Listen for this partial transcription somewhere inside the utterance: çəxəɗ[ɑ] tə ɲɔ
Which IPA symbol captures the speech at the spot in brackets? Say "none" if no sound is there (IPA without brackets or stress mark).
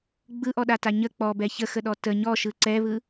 ɔ